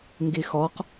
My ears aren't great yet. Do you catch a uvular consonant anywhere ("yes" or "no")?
yes